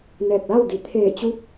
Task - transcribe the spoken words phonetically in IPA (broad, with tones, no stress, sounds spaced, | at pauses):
n ɛː˧˩ k̚ l a˥˨ w d i˩˧ t̪ʰ eː˧˩ t͡ɕ u˧˥ p̚